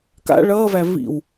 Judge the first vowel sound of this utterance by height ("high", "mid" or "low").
low